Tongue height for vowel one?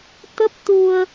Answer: mid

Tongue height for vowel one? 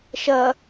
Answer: low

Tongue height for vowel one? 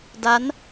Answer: low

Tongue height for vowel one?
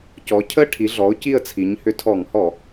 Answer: mid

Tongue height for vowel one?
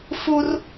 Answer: high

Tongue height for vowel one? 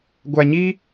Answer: low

